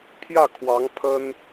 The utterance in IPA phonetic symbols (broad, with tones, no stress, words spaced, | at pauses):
pʰjä˥˩kʰwɑ˧˥ŋ pʰə˥n